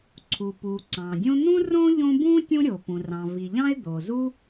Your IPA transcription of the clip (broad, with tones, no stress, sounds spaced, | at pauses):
ǀʰ u˩ p u˩ ǀ ɑ̃˩ dʲ õ˥ n̪ ũ˥ r õ˥ ʎ õ˥ b ũ˥ tʲ ũ˥ ɾʲ o˩ p ũ˩ r ɑ̃˩ v i˩ ʎ ɑ̃˥ ɪ̯ d̪ o˩ z u˥